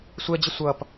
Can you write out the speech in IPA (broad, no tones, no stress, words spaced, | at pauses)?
sʷɛd͡ʑɪ sʷʌp